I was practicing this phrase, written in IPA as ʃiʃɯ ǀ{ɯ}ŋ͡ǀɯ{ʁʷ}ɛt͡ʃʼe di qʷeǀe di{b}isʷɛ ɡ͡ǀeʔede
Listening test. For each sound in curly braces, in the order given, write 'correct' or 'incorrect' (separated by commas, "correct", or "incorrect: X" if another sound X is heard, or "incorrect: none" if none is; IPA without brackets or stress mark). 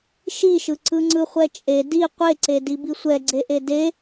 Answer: correct, incorrect: χʷ, correct